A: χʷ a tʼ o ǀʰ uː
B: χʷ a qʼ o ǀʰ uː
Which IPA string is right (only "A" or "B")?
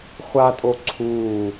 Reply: A